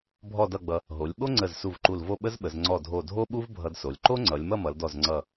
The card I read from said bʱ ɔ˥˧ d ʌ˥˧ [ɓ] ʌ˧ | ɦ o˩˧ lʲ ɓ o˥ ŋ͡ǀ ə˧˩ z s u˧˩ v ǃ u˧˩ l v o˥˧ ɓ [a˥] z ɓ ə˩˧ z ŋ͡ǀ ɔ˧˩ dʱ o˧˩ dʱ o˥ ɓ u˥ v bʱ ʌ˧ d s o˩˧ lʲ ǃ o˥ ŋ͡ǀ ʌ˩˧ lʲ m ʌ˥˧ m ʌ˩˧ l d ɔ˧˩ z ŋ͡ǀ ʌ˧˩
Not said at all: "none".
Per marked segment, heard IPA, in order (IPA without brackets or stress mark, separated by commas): ɡ͡b, ə˥